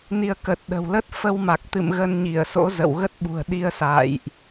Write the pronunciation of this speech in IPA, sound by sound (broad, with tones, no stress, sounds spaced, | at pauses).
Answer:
n i˧ ə̯ k ə˨˩ t̚ ɗ ə̤˨˩ w l ə˦˥ t̚ f ə˧ w m a˨˩ k̚ t̪ ɨ̰˧˨ m ɣ ə˧ n ɲ i˧˩ ə̯ s o̰˧˥ z ə̰˧˨ w ɣ ə˦˥ t̚ ɓ ṳ˨˩ ə̯ ɗ i˧ ə̯ s a̰ː˧˨ j ʔ